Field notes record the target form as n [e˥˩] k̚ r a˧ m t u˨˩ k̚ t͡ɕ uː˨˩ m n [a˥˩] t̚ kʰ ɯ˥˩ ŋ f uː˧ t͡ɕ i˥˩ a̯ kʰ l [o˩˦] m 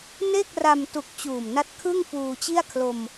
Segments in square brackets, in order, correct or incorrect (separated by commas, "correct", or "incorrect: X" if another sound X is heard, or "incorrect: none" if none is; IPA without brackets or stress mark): correct, incorrect: a˦˥, incorrect: o˧